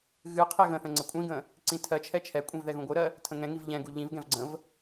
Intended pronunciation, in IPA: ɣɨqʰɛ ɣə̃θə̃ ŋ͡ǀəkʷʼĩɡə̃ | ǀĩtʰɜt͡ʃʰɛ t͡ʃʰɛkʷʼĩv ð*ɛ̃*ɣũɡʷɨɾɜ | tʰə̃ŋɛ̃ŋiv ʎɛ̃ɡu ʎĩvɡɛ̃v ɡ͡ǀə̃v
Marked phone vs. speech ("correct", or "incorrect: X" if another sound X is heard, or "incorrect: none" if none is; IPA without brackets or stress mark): incorrect: ɛ